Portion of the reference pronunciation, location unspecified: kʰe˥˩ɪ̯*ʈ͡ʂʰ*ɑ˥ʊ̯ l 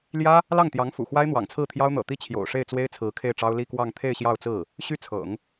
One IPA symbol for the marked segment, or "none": ʈ͡ʂ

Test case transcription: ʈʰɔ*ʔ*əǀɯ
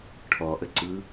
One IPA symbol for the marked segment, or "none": ʔ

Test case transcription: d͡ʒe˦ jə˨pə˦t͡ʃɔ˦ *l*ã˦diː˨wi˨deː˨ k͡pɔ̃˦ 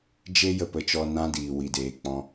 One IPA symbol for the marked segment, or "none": n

